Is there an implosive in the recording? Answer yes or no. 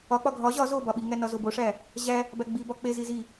yes